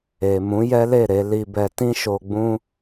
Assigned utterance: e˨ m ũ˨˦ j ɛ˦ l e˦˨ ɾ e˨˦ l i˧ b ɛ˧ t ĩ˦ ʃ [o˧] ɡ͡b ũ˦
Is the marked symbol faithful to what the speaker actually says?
yes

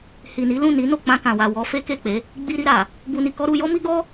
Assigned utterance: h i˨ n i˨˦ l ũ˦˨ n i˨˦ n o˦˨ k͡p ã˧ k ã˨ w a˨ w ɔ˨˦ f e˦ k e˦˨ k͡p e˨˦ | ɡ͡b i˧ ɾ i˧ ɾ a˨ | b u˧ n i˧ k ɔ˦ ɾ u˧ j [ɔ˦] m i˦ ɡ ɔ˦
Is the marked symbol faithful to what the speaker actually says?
yes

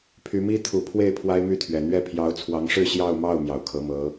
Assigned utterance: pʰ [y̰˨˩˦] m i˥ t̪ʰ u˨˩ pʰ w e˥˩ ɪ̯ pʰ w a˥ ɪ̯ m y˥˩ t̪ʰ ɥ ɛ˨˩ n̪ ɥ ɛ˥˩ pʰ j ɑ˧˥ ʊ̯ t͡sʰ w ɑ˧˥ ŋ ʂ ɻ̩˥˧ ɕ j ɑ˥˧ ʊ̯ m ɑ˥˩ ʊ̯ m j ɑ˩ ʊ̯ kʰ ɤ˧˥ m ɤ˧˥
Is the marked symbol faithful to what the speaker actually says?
no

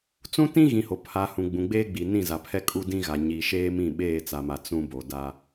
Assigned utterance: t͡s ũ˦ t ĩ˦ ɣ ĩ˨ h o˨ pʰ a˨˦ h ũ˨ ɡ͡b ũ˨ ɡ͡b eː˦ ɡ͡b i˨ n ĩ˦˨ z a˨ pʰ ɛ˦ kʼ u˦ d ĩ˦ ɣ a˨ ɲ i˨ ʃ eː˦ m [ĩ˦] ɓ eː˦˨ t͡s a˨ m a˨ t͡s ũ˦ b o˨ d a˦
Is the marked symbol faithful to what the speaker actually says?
no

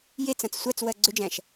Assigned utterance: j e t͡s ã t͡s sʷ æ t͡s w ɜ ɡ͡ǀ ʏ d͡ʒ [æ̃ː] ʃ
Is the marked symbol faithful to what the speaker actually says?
no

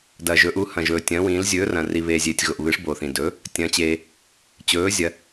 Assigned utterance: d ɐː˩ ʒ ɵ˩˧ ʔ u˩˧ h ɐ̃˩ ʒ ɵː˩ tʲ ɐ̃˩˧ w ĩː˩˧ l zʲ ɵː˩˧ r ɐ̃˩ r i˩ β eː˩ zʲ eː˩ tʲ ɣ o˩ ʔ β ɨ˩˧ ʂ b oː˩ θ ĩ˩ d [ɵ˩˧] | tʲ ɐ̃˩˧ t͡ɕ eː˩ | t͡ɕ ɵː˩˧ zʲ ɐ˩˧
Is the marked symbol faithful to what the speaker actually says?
yes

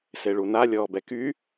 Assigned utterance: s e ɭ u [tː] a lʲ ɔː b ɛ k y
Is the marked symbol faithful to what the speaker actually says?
no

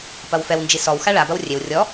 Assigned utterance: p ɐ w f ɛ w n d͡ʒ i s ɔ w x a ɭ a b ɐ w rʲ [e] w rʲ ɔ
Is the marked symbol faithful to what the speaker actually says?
yes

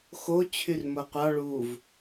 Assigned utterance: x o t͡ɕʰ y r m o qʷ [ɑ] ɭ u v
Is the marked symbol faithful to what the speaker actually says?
yes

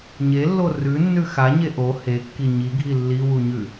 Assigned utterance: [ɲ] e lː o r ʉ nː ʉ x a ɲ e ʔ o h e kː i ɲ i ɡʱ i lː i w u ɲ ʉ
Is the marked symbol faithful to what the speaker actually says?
yes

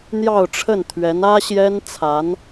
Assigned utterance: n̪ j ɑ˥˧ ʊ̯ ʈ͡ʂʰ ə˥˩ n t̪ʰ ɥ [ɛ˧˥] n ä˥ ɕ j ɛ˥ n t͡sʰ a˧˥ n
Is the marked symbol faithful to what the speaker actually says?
yes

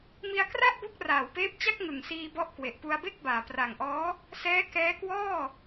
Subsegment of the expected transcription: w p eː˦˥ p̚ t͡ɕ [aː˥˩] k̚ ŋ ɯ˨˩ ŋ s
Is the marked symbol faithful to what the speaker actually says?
no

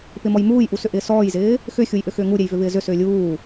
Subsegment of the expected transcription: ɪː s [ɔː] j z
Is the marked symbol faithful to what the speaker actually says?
yes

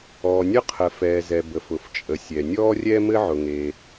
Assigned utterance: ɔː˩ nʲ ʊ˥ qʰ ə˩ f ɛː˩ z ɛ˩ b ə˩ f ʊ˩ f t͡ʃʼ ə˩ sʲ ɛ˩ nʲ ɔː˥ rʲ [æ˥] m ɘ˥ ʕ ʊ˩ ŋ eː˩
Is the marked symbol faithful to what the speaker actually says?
no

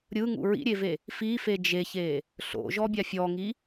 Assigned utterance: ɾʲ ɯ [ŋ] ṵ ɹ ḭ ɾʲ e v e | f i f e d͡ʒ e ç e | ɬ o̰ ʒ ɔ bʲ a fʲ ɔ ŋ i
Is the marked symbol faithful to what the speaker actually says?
yes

